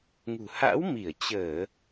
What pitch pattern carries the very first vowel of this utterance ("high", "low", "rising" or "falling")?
low